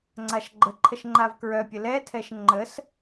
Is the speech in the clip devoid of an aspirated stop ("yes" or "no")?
no